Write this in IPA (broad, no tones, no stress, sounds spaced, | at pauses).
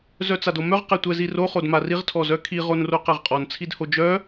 z œ t͡s a d o m œ ʁ q ɛ tʷ ɛ z i r o χ o d m a r i ʁ tʰ ɔ z œ kʰ i ʁ o n r o q ɛ ʁ qʼ ɔ n t͡sʰ i d h o d͡ʒ œ